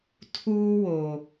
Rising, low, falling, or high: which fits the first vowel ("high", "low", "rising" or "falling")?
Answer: high